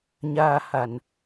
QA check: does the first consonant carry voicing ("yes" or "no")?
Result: yes